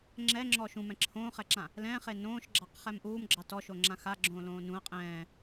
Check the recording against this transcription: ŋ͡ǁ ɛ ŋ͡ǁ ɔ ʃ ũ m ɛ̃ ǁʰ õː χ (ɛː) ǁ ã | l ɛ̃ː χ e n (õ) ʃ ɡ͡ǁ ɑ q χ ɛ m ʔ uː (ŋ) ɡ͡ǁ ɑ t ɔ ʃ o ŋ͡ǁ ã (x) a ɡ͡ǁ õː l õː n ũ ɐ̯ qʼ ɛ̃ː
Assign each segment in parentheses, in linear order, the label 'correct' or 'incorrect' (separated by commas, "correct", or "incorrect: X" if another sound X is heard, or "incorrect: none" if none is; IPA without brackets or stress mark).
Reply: incorrect: ɛ, incorrect: õː, incorrect: m, correct